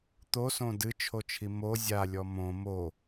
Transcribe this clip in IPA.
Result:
t̪ o s õ d ɨ t͡ʃʰ o t͡ʃʰ i m o zʲ a lʲ ɔ m õ m o

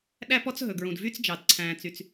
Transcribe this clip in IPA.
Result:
ɗ æ˥ p ɔ˥ t͡s ɦ ɵ˩ ɡ ɹ ũ˩ d v y˥ t͡s d͡ʒ ɑ˩ d ǀʰ æ̃ː˨ t͡s y˨ t͡s

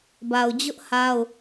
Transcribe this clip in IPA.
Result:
b a˨ ʊ̯ d͡ʑ ʊ˦ ʔ h a˦ ʊ̯

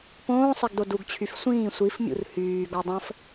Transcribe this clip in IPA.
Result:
p õː sˤ ɛ ɡ d o d u ɡ t͡ɕʰ y f sʷ ĩː sʷ i f mʲ ṵ r h yː ɡ ɔ dˤ ə̃ f

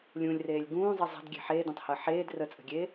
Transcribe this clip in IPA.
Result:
lʲ ũ lʲ r eː lʲ ɡ ũː zˤ ə zˤ ə̤ d ɡʲ e̤ ħ eː d ẽ tˤ h əː ħ eː d r ə t͡sʼ ə̤ ɡʲ eː

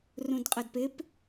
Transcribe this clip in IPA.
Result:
r ũ d qʼ ɐ d p ɪ p

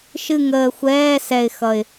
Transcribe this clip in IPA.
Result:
ʃ ɨ˦˨ ŋ əː˨ xʷ ɛː˧˥˧ s ɛ˦˨ ɪ̯ x ʌ˦˨ ɪ̯

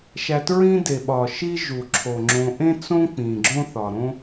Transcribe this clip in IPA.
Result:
ʃ æ˨ t ɹ ĩ˦ d e˩ ɓ ɒ˩ ʃ i˦ ʒ u˩ ǁʰ o˩ ŋ͡ǁ õ˨ ʔ ẽ˥ t͡s õ˥ k͡p ĩ˩ ɡ͡ǁ õ˥ θ ɒ˩ ɾ õ˥

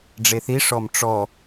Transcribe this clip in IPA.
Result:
ɖ͡ʐ e θ i ʂ ɔ m ʈ͡ʂ ɔ

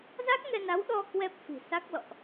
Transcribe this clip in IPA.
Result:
z a˦˥ k̚ ŋ ɛ˧ n a˨˦ w ɗ ɔ˧ k w ɛ˦˥ p̚ f i̤˨˩ s a˦˥ k̚ l ɔ̰˧˨ ʔ

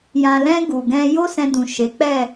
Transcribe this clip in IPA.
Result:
j ã˨ l ɛ̃˧ ɡ u˨ ɡ ɛ̃˧ j o˦ s ɛ̃˧ d ũ˨ ʃ e˨˦ k͡p ɛ˦˨

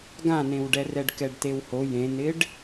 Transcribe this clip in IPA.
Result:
ɡ ã n ẽ w ɖ ɛ r ɛ ɖ k ɛ ɖ t e w h o j ẽ n ɪ ɖ

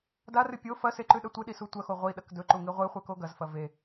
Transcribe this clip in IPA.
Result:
d a r ɨ pʲ o f ɐ s e ǃ ʉ ɗ ɐ tʷ ɨ ɗ i s u tʷ ɐ x o ʁʷ i ɗ ɐ k d ɵ ǃ u ŋ i ʁʷ e χʷ e k o ɡ ɐ z f ɐ v e

